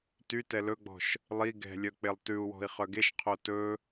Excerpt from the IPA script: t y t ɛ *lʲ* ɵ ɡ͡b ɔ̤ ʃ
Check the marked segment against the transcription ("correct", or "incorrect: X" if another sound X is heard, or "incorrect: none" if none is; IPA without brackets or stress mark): incorrect: l